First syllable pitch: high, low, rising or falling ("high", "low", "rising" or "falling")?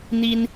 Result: high